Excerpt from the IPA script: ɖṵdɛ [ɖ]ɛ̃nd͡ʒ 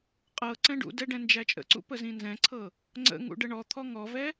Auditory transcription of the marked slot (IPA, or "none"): ɖ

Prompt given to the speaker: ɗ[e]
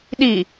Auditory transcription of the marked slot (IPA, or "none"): i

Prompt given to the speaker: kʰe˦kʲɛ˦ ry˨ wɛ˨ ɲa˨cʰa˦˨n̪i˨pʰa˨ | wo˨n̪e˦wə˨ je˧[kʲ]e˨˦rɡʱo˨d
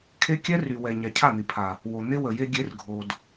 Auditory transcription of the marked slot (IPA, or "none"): ɡʲ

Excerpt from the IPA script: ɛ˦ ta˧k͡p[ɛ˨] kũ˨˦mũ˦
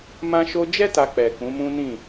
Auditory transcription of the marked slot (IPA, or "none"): ɛ˨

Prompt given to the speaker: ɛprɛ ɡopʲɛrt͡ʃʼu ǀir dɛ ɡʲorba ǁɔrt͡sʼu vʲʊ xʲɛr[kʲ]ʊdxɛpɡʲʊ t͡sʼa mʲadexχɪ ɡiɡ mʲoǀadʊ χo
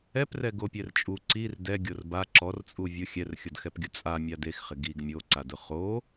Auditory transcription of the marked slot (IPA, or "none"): xʲ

